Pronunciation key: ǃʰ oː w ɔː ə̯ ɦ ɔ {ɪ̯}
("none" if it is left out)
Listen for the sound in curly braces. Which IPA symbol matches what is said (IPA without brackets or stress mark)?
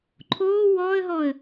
ə̯